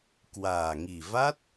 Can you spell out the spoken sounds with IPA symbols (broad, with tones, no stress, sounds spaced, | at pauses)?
k w aː˨˩ ŋ i˨˩ v a˦˥ t̚